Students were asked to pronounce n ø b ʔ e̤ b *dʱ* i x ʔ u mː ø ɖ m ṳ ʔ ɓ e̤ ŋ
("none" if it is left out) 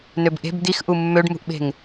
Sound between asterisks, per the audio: d̪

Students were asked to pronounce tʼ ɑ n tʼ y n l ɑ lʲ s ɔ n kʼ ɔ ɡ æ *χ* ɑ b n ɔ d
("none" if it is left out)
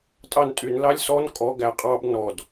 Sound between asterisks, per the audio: qʼ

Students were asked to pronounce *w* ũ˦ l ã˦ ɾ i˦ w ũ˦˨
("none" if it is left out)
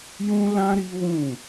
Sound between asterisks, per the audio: j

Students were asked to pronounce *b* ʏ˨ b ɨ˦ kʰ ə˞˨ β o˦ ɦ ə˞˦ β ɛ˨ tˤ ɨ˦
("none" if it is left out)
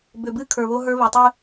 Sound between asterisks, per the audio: b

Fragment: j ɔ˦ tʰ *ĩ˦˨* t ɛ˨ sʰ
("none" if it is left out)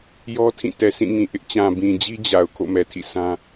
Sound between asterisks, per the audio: ĩ˦˨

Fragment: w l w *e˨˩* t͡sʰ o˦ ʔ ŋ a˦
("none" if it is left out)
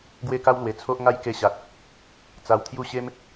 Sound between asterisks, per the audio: e˨˩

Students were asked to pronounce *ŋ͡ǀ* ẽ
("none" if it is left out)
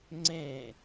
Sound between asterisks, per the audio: ŋ͡ǀ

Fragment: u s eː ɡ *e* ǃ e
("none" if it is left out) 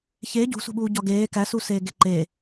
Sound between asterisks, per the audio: e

